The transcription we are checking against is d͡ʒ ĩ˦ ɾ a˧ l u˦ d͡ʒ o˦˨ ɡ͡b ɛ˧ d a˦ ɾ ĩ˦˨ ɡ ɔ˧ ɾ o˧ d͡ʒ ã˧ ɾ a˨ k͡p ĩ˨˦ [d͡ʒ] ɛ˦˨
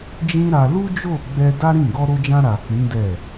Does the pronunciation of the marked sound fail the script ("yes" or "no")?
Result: yes